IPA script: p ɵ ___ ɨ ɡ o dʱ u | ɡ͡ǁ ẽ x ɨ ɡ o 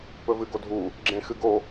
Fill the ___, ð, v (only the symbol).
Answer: v